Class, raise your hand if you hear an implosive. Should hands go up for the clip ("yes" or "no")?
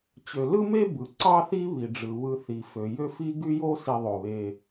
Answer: no